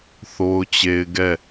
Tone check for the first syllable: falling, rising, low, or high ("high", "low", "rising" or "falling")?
high